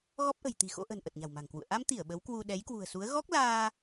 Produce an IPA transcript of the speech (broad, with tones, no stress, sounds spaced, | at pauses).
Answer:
ɣ ɔ˦˥ p̚ ʔ ə̤˨˩ j t̪ i̤˨˩ x o̰˧˥ ʔ ə̤˨˩ n ʔ ə˨˩ t̚ ɲ a̤˨˩ w m a̤˨˩ ŋ k w ṵ˧˨ ə̯ ʔ a˧ m t̪ i˧˩ ə̯ ɓ ə˨˦ w k w u˧ ɗ ɛ˨˦ j k w ṳ˨˩ ə̯ s u˨˦ ə̯ ɣ ɔ˦˥ k̚ l aː˧